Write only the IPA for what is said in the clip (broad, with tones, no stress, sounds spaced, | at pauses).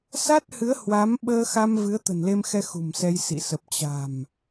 s a˦˥ t̚ h ɨ˨˦ ə̯ h w a˨˦ m ɓ əː˧ x a˧ m v ɨ˨˦ ə̯ t̪ ə̤˨˩ n l e˧ m x ɛ˧ x ṳ˨˩ m s ɛ˧ j s ḭ˧˨ s ə˨˩ p̚ t͡ɕ a̤˨˩ m